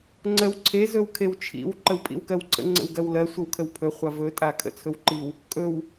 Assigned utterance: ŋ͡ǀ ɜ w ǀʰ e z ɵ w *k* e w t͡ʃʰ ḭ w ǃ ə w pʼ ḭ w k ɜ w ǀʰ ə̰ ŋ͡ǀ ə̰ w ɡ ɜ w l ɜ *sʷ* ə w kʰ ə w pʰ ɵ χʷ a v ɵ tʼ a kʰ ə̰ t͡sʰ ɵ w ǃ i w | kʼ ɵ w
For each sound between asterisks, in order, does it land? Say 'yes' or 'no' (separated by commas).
no, yes